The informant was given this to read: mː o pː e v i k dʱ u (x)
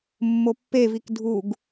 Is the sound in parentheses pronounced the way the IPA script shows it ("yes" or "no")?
no